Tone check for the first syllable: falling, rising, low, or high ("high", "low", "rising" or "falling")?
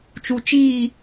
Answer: low